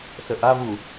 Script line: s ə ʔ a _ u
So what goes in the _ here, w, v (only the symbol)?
v